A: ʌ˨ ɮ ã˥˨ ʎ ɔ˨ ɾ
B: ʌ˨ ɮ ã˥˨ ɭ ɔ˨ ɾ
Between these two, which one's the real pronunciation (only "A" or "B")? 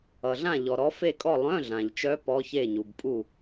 A